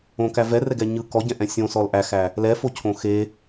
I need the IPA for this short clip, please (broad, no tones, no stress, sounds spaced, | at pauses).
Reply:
õ k æ v ɛ r ɛ ɡ ɛ ɲ ɯ k ɔ ɟ ɛ̃ ʔ ɛ̃ sʲ õ s ɔ l ʔ æ x æ | l ɛ f o cʰ õ x e